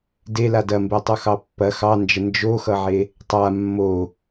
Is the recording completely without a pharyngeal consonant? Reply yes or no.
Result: no